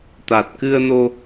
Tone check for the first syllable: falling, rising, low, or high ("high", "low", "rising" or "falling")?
low